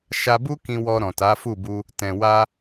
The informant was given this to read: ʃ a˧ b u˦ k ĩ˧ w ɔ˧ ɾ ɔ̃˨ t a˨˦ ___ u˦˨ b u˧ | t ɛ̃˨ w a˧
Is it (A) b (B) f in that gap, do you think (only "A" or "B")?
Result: B